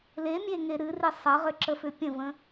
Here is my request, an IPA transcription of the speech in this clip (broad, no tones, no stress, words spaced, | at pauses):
lemʲeŋe ɾɨri sˤəʁʏǁəfʏ pʲə̃və̃